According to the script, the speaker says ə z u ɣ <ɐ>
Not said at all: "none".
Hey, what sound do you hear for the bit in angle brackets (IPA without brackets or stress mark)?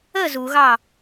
ɑ